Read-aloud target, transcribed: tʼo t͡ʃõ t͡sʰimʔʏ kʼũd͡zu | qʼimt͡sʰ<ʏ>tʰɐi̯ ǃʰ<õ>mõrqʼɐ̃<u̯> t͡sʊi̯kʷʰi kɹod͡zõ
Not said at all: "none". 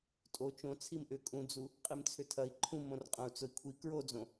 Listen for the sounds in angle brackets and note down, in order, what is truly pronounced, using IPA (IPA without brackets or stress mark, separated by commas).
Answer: ʏ, ũ, u̯